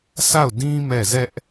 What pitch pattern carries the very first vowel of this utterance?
falling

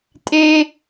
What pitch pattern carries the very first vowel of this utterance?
high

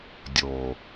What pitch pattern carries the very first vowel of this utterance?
low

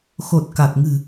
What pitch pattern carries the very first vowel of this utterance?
low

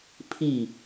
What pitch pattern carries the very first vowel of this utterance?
falling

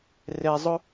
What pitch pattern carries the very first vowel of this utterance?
high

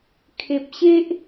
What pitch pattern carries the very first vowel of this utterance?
low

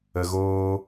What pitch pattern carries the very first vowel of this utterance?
low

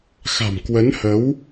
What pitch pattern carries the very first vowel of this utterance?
low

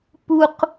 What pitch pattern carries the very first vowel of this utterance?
high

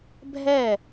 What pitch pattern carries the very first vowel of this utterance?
falling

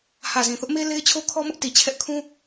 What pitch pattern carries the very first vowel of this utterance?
low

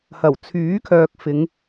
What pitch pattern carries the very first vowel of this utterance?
low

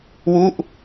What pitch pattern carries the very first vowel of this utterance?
falling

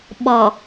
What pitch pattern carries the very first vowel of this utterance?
low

